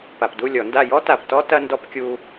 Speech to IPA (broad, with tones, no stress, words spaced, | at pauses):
pa˨pdu˦˨lʲɔ˨˩˦nda˦˨ jɔ˥ta˨ptɔ˥ tɐ˥ndɔ˥p kʲu˥